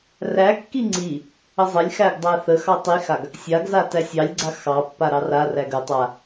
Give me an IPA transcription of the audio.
r æ kː i ŋ͡ǀ i | ə zˤ ə lʲ x æ ɡ dˤ æ θ ə x ɑ tˤ i x a ɡ | sʲ a ɡ z a t æ sʲ ɑ lʲ ɡ͡ǀ a x ɑ pː a ɾ ɑ r a r æ ɡ ə tˤ a

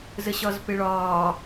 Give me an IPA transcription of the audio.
z ə ɕ ɒ z p ɪ ɭ ɒː

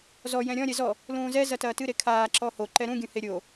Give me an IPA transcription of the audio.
z ɔ j ɛ̃ ɾʲ ɔ̃ ɾʲ ɛ z ɔ | l ũː z ɛ z ɐ t ɐː t ɨ ɾ e kʰ aː ǁ ɔ h o ǃ ɛ ɾ ũ ɡʲ ũ h e ɾʲ o

